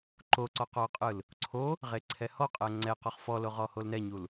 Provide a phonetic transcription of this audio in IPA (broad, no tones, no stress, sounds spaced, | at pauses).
ǃ o ǀ ɔ q ɔ qʼ ɯ l | ǀʰ o | ʁ e ǀʰ ɛ h ɔ qʼ ɛ ŋ͡ǀ ɛ q ɔ χ f ɔ l o ʁ ɔ h o l n ɛ ɲ u l